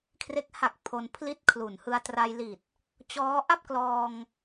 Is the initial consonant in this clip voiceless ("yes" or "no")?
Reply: yes